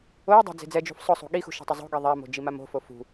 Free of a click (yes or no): yes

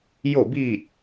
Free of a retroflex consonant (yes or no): yes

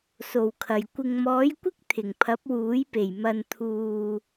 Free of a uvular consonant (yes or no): yes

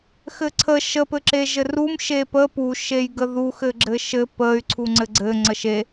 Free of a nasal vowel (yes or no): yes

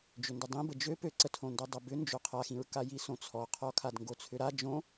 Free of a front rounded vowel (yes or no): no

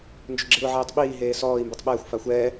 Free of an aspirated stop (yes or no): yes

